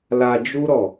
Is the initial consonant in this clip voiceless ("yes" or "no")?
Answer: no